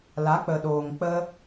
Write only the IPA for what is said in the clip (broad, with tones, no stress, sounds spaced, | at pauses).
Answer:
l a˨˦ k͡p ə˨ ɗ oː˨ ŋ k͡p ə˧